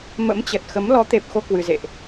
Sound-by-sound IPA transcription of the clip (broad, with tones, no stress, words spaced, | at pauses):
mə̰˧˥mt͡ɕə˨˩t̚ xə˨˦m lɔ˨˦t̪e˨˩p̚ xo˧kwɨ˨˩zḛ˧˨ʔ